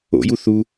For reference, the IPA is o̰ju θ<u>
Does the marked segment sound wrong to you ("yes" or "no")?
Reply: no